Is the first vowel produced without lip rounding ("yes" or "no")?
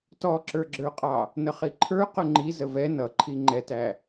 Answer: no